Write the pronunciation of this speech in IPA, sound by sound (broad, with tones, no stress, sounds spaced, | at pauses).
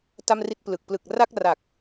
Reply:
t a˥˩ m r i˥˩ t̚ p l ɯ˨˩ k̚ p l ɯ˨˩ k̚ r a˥˩ k̚ r a˨˩ k̚